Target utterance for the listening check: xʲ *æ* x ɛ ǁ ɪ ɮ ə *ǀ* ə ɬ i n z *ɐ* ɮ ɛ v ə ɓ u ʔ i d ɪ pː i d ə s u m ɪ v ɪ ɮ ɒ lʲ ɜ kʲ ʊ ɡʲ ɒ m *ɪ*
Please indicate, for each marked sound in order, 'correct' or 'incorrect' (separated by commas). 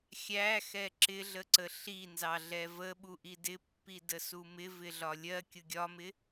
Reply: correct, correct, incorrect, correct